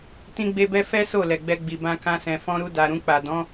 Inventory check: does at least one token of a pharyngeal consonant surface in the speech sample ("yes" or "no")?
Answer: no